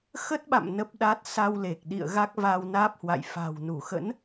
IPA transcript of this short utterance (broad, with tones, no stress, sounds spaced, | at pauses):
x ə˦˥ t̚ ɓ a̰˧˨ m n ə˦˥ p̚ ɗ a˦˥ t̚ s a˧ w l e˨˩ k̚ ɗ ḭ˧˨ ə̯ ɣ a˦˥ k̚ v a˧ w n aː˦˥ p̚ h w a̰˧˨ j f a̤˨˩ w n u˧˩ x ə̰˧˥ n